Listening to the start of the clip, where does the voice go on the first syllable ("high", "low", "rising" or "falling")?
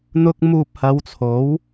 high